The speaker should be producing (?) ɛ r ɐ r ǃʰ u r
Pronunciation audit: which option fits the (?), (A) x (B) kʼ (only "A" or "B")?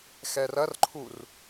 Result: A